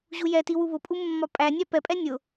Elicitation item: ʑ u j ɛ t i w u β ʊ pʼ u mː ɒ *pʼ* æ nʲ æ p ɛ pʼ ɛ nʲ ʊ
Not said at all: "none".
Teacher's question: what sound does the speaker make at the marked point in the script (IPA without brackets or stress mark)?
pʼ